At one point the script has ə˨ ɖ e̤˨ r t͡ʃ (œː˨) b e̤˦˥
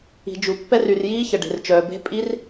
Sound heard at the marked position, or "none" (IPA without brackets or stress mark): œː˨